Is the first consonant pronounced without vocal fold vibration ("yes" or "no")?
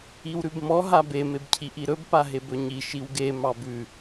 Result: no